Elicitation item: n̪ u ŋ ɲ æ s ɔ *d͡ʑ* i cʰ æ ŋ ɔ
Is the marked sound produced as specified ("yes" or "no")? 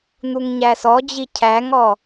yes